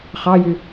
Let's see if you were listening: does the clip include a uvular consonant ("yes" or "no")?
yes